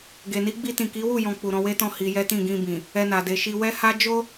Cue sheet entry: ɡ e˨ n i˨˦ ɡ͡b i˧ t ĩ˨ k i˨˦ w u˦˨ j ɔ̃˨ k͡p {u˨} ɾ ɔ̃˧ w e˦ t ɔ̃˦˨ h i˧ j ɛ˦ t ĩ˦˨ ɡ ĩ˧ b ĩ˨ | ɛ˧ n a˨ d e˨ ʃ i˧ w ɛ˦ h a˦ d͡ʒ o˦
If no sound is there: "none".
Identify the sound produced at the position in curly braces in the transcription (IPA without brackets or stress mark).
u˨